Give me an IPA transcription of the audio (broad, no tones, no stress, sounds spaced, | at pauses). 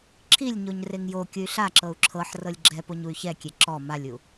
ǁʰ i lʲ ɲ o ɲ r e ŋ j o kʲ ɯ y̯ ɬ a ǁ ɤ u̯ ǁʰ ɤ ħ r ɤ lʲ ɡ͡ǁ ɛ p o ɲ u y̯ ç ɛ kʲ e ǁ ɔ m a lʲ u